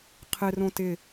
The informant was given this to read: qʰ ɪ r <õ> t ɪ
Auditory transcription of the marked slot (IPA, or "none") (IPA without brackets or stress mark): õ